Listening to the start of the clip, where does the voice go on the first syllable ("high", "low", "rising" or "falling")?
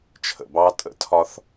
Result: low